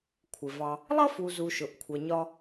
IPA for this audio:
kʷʰ ɪ˨ v ɑ˧ | lˠ ʌ˦ f u˨ z u˨ ʃ ʊ˨ ʔ kʷʰ ʌ˨ ɲ ɒ˧

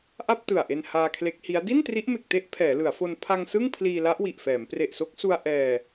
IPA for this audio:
ʔ a˥˩ p̚ t ɯ˨˩ a̯ ʔ e˧ n h aː˧ kʰ l e˦˥ k̚ h i˦˥ a̯ d i˥˩ n t r i˦˥ ʔ m e˨˩ k̚ t e˦˥ ʔ pʰ ɛː˩˦ l ɯ˩˦ a̯ f o˧ n pʰ a˧ ŋ s ɯ˥˩ ŋ pʰ l iː˧ l a˦˥ ʔ w i˨˩ ʔ f ɛː˩˦ m p r e˨˩ ʔ s o˦˥ k̚ s u˧ a̯ ʔ ɛː˧

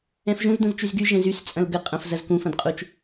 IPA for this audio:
ɛ̃ f ʒ ũ z d ũ z t͡ʃ y z ɡ y ʒ ɛ̃ z y s t͡sʼ ɐ̃ l ɡ ə qʼ ɐ̃ f z ɐ z k ũ f ɐ̃ d qʼ u t͡ʃ

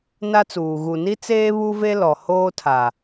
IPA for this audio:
n a˦ t͡s uː˨ ɣ u˨ n i˦ t͡s eː˦ β u˦ v e˦ l ɔ˨ h oː˦ tʰ a˨

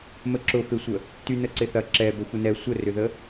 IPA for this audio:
m ə ǁ ʊ f e sʷ ə | t y n ə ǀ ɪ θ ɐ ǁ ɛ b ə xʷ ɪ n ɛ sʷ ə r ʏ ð ə

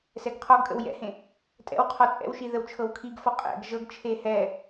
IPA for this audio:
s ɛ ɡ qʰ ɔ ɡ kʼ ə̰ w j ɛ̰ h ẽ | tʼ ɛ̰ w qʰ ɔ t͡sʼ ɛ̰ w ʃ i ð ə w t͡ʃʰ ɤ w kʰ i ɡ f ɔ qʼ ɛ̰ ɡ ʒ ɤ ɡ t͡ʃʰ e h ɛ

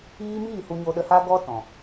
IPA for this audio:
iː˦ m iː˦˨ h u˧ ɲ o˧ ɗ ə˧ h a˦ ɡ ɔ˦ t ɔ̃˨

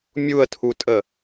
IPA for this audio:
mʲ u ə̯ tʰ u tʼ ə

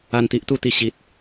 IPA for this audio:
a˨˩ n t̪ i˨ ʔ t̪ u˧ t̪ i˨˩ ɕ i˨ t̚

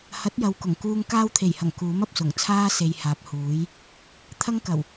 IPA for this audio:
h ɐ˨˥ t̚ j ɐ˨ w k ʊ˨˩ ŋ k uː˧ ŋ k aː˧ w t̪ʰ e˨˩ j h ɐ˨˩ ŋ k uː˨˥ m ɐ˨ p̚ s ʊ˨˩ ŋ t͡sʰ aː˥ s e˨ j h aː˨ p̚ h uː˨˥ j | t̪ʰ ɐ˥ ŋ k ɐ˨˩ w

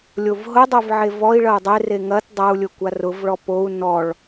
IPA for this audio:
lʲ o v ɦ ʊ dˤ ɵ v ʕ e v ɔ i̯ ɭ ɐ u̯ dˤ e r e ŋ ɐ t dˤ ɐ u̯ lʲ ʊ kʷ a r ʊ v ɭ ɔ p o u̯ n ɔ ɭ

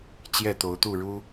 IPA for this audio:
t͡ɕ j ɛ˥˨ t̪ o˨˦ ʊ̯ t̪ u˥˨ ɻ u˦

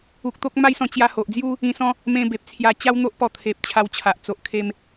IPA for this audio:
u˨ k̚ t̪ o˦ k̚ m a˦ j s ɔ̃˧ t͡ɕ j a˧ h o˨ ʔ d͡z j u˦ | ĩ˧ s ɔ̃˦ | m ẽ˧ b e˨ p̚ t͡sʰ j a˧ t͡ɕ a˦ w n̪ o˦ ʔ p ɔ˧ t̪ʰ e˨ p̚ t͡ɕʰ a˧ w t͡ɕʰ a˨ ʔ t͡s o˨ ʔ kʰ e˦ m

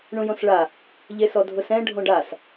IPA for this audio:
ɳ ũ j õ s ɭ a | ʎ e s ɔ dʱ ʊ s ɛ̃ ɖʱ õ ɖ a s

